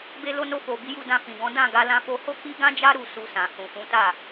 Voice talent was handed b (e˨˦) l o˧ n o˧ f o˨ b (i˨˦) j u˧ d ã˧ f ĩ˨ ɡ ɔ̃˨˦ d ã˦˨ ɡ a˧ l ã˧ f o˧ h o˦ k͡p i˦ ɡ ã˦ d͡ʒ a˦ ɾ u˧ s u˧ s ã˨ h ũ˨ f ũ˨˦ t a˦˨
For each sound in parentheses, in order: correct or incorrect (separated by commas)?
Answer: incorrect, correct